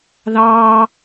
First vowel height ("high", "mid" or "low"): low